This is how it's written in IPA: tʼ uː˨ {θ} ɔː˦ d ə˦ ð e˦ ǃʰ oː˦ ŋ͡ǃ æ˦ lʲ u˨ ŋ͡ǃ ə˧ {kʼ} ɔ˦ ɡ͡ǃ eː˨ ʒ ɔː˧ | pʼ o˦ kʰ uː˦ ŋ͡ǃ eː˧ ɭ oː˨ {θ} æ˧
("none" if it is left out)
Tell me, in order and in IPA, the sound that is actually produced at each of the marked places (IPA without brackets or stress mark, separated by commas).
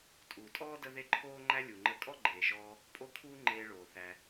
tʼ, kʼ, θ